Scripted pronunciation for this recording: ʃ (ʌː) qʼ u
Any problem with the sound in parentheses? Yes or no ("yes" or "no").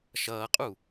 no